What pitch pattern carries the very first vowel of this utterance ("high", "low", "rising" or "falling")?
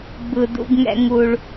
low